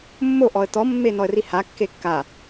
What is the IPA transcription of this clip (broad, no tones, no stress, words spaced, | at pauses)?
mːo ʔɔə̯t̪ɔ mːenɔə̯riha kːekːa